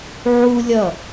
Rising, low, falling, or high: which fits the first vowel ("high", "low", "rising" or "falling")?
high